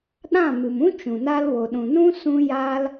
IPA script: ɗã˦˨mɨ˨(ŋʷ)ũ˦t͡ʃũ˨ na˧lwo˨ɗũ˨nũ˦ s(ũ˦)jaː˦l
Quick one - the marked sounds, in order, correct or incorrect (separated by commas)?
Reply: incorrect, correct